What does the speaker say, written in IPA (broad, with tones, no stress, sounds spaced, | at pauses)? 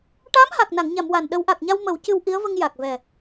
ʈ aː˧˥ m h a˨˩ k̚ n a˨˩˨ ŋ ɲ a˨˩˨ m w a˨˩ n ɗ ə˨˩˦ w ʔ a˨˩ k̚ ɲ a˧ w m ə˨˩˦ w c ɨ˧ w ʔ i˧˥ ə̯ v ə˧ ŋ j a˨˩ k̚ v ɛ˨˩